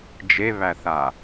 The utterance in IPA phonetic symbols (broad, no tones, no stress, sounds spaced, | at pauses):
d͡ʒ e β æ θ a